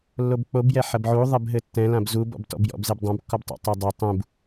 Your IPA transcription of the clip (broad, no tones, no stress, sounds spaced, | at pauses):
lː o b k͡p o b j ɛ ħ ɐ b ʕ u ðˤ ɛ b ɦ ɘ tː ɛ̃ l ã b z u b ɔ̰ b t ɔ̰ b j ɔ̰ b z e b dˤ ã b kː ɔ b tˤ ṵ tˤ ɐ dˤ ɐ tˤ ũ b